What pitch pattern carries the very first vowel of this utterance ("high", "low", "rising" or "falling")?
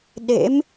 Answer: rising